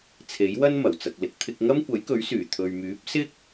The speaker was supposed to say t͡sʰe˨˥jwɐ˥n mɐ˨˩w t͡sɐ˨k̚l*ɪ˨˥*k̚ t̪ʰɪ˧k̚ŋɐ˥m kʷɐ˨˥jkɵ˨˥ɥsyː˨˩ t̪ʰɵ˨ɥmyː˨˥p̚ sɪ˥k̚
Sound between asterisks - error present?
no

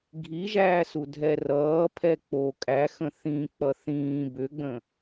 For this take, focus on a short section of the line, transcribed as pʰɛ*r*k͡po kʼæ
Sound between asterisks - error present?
yes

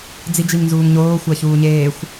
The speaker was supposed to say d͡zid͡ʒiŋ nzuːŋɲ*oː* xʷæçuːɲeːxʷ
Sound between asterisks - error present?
no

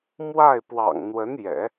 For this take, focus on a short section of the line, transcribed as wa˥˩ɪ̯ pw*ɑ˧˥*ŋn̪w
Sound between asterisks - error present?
yes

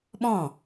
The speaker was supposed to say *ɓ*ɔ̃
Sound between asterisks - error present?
no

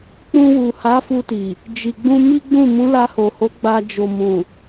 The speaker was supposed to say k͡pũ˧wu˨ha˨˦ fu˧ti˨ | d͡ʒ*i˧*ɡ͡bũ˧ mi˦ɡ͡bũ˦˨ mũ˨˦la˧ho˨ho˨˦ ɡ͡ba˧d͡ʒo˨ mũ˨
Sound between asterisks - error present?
yes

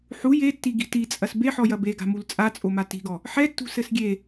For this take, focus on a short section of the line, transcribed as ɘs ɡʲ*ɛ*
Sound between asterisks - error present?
yes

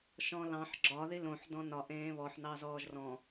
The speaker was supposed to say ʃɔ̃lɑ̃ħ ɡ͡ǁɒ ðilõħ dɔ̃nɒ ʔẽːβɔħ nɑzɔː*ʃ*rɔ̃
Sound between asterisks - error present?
yes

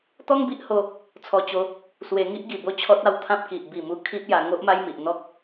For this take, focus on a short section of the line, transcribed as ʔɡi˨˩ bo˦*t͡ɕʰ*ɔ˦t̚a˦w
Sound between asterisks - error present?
no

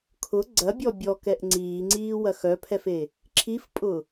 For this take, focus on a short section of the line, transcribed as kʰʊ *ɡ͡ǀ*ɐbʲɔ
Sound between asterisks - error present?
no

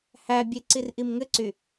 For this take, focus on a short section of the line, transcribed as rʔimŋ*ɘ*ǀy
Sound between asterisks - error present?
no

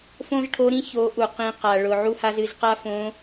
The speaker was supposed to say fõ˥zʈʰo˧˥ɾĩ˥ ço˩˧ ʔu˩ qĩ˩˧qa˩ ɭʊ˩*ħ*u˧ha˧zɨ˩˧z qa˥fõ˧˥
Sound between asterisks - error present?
yes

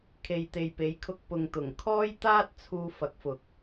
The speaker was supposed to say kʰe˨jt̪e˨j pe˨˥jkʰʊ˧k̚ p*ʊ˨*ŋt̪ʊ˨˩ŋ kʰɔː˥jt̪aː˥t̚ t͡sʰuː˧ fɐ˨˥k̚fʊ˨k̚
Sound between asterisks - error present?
no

